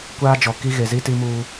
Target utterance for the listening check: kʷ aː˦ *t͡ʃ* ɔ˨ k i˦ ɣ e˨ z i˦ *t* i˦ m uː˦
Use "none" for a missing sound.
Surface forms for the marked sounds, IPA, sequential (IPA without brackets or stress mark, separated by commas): d͡ʒ, t